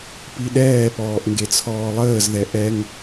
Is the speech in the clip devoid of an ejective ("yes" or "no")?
yes